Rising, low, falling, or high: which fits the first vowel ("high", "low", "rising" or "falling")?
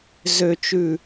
low